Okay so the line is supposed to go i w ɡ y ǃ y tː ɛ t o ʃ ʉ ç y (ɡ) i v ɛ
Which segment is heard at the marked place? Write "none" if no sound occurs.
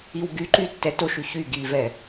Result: ɡ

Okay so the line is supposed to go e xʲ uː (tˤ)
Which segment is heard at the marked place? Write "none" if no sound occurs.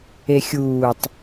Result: tˤ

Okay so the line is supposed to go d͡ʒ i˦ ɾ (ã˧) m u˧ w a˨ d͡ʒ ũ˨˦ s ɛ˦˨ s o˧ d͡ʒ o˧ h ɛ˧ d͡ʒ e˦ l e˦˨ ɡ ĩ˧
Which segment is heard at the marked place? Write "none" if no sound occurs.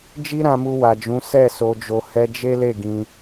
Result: ã˧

